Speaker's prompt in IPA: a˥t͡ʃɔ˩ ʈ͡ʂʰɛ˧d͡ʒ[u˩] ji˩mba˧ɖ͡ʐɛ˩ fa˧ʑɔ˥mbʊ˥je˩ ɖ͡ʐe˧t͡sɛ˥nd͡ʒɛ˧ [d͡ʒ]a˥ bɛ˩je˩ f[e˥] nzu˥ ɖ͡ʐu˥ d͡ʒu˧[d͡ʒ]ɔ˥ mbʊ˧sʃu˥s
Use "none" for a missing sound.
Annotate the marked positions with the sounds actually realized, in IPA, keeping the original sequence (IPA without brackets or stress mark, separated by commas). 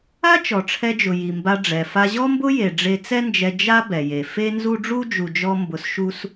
ʊ˩, d͡ʒ, e˥, d͡ʒ